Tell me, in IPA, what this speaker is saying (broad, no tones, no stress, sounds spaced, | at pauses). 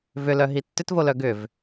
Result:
v ʏ l œ ɦ i tː ʏ t v o l œ ɡ ʏ v